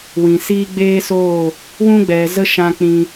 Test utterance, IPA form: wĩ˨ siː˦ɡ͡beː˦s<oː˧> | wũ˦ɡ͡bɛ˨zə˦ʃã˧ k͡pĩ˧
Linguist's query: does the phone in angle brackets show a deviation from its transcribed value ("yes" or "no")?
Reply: yes